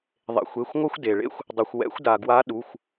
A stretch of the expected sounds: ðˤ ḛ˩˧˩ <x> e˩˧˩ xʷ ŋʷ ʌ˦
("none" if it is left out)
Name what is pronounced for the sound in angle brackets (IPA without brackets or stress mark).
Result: xʷ